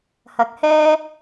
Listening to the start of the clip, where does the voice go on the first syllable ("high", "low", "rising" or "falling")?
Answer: low